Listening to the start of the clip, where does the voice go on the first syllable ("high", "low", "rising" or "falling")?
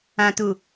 low